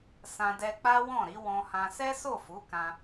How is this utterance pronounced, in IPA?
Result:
s ã˧ d ɛ˧ k͡p a˦ w ɔ̃˦˨ ɾ i˨˦ w ɔ̃˧ h ã˧ s ɛ˦ s o˦˨ f u˨˦ k ã˧

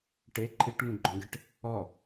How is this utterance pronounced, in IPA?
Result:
ʈ e ǃʰ i ʈ ŋ ũ ɡ͡ǃ ɔ̃ ɡ e ʈ | ɔ

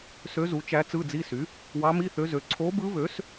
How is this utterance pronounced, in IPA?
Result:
s ø˧˥ z u˩˥ t͡ʃ æ˧˥ t͡s ɯ˧˥˧ d͡z i˧˥˧ s y˩˥ | w ɑ˧˥ m i˧˥˧ θ ø˧˥ z ø˩˥ ǀʰ o˧˥ b ɯ˧˥ β ø˩˥ s

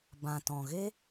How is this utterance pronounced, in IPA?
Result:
b ã˨ t ɔ̃˨ ɣ e˦

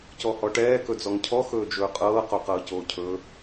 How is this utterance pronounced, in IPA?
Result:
c ɔ h ɔ ʈ ɛː k ɵ d͡z ɔ ŋ cʰ ɔ x ɵː d͡ʒ ɵː qʼ ɤː q o q ɤː c oː cʰ ɵ

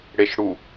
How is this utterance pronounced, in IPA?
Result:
ɽ e ʃ ɽ u

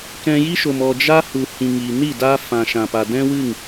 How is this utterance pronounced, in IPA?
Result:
k ɛ̃˧ j i˦ ʃ o˨ m ɔ˨ d͡ʒ a˦ h u˨ h ĩ˨ ŋ iː˨ n i˦˨ d aː˦ f ã˨ ʃ ã˨ p a˨ d ɛ̃˦ w ɨ˦˨ ŋ

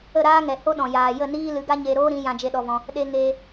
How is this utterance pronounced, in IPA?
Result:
ə˦˨ ɾ aː˦ ŋ ɛ˨ h o˦ ɗ ɔ̃˨ j aː˨ j ə˦˨ n iː˦ l ɨ˨˦ ɡ a˦ ɲ e˧ ɾ oː˦ ɾ ĩ˨˦ j ã˧ d͡ʒ e˧ ɗ ɔ˧ v ɔ̃˧ | ɗ e˧ ŋ eː˧

